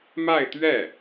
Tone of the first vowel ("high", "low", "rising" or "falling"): falling